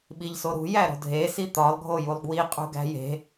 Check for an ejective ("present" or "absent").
present